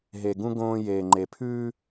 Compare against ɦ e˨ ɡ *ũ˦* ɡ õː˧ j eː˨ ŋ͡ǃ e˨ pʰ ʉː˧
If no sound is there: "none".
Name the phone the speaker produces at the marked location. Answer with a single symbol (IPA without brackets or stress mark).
ũ˦